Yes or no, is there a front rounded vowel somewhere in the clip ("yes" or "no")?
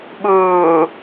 no